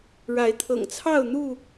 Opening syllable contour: rising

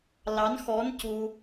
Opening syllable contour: rising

